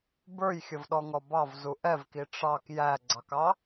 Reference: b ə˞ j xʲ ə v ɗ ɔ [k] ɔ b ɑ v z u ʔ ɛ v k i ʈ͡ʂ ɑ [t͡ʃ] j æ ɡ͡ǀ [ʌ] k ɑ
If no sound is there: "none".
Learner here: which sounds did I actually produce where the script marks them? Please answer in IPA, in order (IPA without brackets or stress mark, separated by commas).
ŋ, k, ɑ